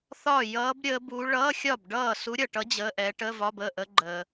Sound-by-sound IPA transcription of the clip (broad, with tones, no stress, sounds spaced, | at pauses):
θ ɒ˥˩ j ʌː˧˥ b ɾʲ əː˧˥ b u˧˥ ɭ ʌː˧˥˧ xʲ ɒ˥˩ b ɖ ʌː˥˩ s u˧˥ ɾʲ ʌ˨ ʈ ʌ˧˥ d͡ʑ əː˧˥˧ ʔ ɛː˧˥ ʈ əː˧˥˧ v ɒ˧˥˧ b əː˥˩ ʔ ə˧˥ ɡ͡ǃ əː˨